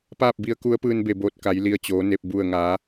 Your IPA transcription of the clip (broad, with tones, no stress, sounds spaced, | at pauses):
p aː˥˨ p̚ b i˧ ə̯ k u˧˥ ə̯ p ɯː˧ n b e˧˩ b oː˧˩ t̚ k a˩˧ j l i˧˩ ə̯ t͡ɕ oː˩˧ n e˧˩ p̚ b u˧˩ ə̯ ŋ a˩˧